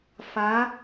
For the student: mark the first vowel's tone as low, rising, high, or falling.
rising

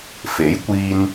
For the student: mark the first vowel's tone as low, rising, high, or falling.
rising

